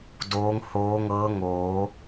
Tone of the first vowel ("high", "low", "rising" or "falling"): rising